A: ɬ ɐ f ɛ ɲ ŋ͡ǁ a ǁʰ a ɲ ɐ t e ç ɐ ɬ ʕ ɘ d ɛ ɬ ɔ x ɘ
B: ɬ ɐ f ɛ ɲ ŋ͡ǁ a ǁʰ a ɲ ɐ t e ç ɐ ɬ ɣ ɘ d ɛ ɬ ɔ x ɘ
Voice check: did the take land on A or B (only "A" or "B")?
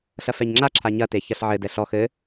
A